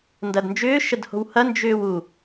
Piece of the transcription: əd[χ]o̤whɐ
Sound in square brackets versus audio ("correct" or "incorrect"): incorrect